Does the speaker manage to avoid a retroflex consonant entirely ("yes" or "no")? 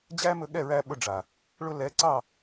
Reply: no